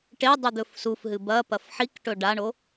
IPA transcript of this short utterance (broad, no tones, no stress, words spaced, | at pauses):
ʈe dˤud̪ɵfsufɦɨ bɐpɐf ħikʈɵ ɖaɳo